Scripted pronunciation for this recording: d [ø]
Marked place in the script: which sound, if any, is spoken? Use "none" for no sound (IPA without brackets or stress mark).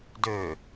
ø